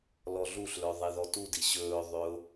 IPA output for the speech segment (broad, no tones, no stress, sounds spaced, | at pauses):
l ɔ ɮ u ɬ l œ ðˤ i ð ɔ t u d i ɕ ɵː ðˤ ø ʊ̯